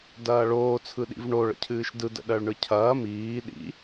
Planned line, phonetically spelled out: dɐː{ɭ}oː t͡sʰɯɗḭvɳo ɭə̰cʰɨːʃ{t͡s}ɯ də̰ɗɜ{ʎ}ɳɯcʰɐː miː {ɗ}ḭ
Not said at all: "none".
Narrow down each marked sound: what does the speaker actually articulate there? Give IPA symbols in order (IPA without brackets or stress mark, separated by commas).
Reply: ɭ, d, ɭ, ɗ